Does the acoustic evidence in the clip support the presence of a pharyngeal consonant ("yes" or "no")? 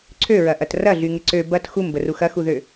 no